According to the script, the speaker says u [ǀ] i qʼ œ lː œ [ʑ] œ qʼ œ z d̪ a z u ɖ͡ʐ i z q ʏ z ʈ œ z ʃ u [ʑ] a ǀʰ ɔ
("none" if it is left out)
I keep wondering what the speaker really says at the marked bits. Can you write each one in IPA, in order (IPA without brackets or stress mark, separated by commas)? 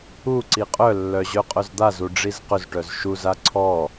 ǀ, ʑ, z